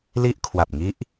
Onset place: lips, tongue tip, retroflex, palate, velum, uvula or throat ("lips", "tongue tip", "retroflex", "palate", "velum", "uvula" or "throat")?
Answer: tongue tip